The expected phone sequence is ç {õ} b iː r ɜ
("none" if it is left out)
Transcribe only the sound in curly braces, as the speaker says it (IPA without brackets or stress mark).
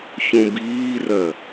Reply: õ